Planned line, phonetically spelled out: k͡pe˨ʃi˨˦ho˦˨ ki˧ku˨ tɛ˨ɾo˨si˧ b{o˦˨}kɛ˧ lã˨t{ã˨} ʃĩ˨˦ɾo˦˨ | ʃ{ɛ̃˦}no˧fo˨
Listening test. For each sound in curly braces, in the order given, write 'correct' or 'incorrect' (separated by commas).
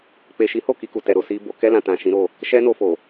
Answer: incorrect, correct, incorrect